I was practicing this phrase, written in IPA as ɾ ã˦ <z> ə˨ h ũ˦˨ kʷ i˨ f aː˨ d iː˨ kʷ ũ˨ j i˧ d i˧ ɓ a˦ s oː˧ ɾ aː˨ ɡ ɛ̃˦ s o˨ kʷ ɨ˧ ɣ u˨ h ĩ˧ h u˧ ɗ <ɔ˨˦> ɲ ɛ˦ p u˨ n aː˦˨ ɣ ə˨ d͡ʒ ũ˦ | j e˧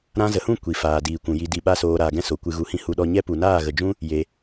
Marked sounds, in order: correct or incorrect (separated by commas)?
correct, incorrect